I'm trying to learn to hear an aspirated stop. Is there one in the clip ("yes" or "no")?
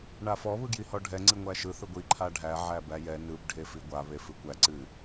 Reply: yes